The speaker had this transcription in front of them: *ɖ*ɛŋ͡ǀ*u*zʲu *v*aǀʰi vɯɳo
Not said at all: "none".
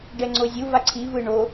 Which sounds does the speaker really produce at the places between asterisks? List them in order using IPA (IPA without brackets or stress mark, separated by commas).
ɖ, o, v